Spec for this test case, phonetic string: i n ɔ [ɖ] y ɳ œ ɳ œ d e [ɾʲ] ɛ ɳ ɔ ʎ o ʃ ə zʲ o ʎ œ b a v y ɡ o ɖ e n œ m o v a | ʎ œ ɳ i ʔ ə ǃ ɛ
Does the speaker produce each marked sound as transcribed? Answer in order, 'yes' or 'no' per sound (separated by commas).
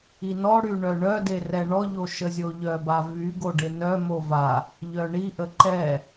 no, no